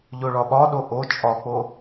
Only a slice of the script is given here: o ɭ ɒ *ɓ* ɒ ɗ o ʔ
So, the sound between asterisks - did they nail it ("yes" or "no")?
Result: yes